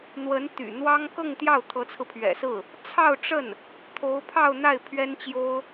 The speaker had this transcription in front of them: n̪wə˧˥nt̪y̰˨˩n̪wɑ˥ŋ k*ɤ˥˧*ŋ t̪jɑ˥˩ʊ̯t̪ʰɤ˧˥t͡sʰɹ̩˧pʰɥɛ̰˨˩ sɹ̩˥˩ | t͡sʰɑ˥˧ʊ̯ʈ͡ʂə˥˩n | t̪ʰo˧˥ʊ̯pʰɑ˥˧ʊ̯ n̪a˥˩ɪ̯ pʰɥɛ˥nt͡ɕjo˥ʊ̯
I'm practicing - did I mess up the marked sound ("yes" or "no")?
no